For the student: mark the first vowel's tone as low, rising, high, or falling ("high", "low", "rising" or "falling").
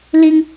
high